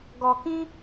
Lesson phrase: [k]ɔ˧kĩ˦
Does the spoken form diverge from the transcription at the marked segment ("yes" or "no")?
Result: yes